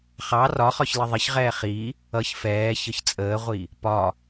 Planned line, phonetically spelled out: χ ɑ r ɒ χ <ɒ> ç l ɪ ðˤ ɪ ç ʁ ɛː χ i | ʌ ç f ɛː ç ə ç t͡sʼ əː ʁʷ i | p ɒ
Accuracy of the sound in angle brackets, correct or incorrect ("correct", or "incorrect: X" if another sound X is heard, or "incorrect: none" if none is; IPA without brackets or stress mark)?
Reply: correct